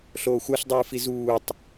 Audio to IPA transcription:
ɬ oː xʷ a ɬ dˤ ɯː f i z uː tˤ

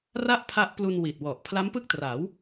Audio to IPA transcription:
r a˥˩ ʔ pʰ a˦˥ ʔ p l u˧ n w i˨˩ t̚ w ɔ˨˩ ʔ pʰ l a˦˥ m p ɯ˥˩ k̚ t r a˩˦ w

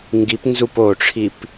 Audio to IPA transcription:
ŋ ɡ i p n z u p o ʈ͡ʂʰ i p

